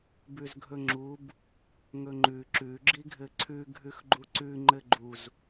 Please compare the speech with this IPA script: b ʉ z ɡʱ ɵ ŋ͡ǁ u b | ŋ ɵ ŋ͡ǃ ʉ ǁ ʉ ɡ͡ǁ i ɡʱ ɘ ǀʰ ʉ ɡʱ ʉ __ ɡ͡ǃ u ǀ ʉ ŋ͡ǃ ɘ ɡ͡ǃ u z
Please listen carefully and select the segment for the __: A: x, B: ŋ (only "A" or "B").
A